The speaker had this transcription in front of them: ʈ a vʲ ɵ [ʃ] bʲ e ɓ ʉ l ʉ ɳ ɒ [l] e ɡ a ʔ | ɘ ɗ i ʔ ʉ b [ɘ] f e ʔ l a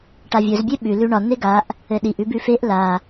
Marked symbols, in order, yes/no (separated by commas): no, no, no